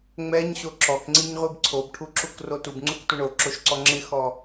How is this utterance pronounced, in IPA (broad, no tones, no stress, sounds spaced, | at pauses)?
ŋ͡m ɛ ɲ ɕ o ǁ ɔ k ŋ͡ǀ i ɲ ʁʷ i b ǀʰ o b ʈʰ u ǁ u k r o t u b ŋ͡ǀ u k tʷ ɛ ɳ o ǁ o ʃ ǀ ɔ ŋ͡ǁ ɪ x ɔ